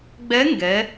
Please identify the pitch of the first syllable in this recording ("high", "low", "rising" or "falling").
rising